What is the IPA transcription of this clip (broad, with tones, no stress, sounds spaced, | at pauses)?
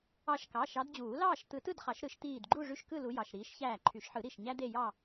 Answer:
ɑ˧˩ ʃ k ɑ˩˧˩ ʃ ɑ˨˦ d d͡ʑ uː˨˩˦ l ɑː˥˨ ʃ t̪ ɯ˨˦ t ɯ˥˨ d χ ɑ˨˩˦ ʃ ɾ ɯ˨˦ ʃ t̪ iː˧˩ d ɡ͡ǃ u˥˨ ʐ y˦ ʃ k ɯ˥˨ l u˨˦ j ɑ˩˧˩ ʃ ɾ iː˨˦ ʃ ç æː˧˩ ǃʰ y˨˩˦ ʃ ħ ɯ˨˩˦ ɾ i˧˩ ʃ ɲ æ˦ d̪ e˥˨ j ɑ˥˨